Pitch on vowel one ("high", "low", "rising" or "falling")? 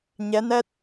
rising